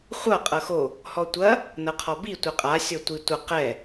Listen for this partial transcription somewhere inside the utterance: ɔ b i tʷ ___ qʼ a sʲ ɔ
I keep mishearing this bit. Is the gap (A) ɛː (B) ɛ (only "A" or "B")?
B